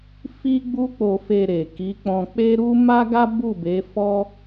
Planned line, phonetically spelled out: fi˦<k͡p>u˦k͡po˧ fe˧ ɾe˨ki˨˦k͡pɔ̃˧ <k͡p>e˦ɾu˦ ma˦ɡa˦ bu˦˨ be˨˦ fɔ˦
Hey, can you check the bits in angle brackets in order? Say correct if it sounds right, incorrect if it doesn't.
incorrect, correct

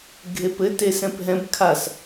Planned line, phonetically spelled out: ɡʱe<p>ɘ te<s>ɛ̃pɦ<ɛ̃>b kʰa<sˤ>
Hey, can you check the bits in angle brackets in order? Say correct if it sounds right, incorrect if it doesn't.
correct, correct, correct, incorrect

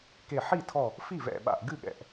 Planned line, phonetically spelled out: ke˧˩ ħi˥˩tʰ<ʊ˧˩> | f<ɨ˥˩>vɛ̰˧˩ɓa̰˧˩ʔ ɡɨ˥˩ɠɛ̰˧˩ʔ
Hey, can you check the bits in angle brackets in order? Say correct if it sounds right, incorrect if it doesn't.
incorrect, incorrect

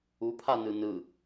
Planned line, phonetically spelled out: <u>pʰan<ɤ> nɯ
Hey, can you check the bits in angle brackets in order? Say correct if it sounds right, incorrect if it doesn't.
correct, incorrect

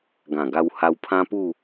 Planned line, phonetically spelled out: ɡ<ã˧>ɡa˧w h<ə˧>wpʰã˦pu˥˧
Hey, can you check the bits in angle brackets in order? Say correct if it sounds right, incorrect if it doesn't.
incorrect, incorrect

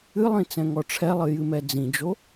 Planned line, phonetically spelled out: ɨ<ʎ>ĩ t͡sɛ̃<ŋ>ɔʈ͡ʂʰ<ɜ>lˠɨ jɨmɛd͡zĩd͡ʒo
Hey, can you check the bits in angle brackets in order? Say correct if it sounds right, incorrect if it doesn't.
incorrect, correct, incorrect

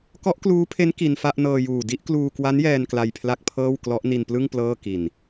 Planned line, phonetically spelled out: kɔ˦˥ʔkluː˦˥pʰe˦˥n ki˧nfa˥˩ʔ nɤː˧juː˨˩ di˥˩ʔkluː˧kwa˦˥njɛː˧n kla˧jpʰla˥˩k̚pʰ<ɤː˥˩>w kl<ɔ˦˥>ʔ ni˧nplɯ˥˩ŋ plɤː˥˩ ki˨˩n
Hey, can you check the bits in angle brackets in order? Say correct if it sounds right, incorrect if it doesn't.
correct, correct

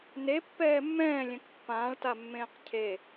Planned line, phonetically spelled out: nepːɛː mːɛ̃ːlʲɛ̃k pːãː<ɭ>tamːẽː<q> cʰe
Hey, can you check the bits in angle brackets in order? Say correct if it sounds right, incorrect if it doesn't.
correct, correct

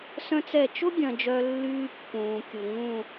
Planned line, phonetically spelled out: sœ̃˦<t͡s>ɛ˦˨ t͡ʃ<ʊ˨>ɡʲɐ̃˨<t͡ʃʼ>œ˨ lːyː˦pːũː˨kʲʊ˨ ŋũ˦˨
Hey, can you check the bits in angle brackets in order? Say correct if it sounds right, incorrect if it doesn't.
correct, incorrect, incorrect

